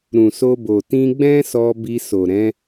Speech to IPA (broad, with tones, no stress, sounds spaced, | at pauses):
ɾ ũ˨ s o˧ b o˨ t ĩ˧ ɡ͡b ɛ̃˦ s ɔ˧ b i˧ s o˨ ɾ ɛ̃˨˦